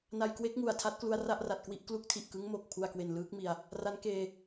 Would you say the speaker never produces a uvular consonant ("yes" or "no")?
yes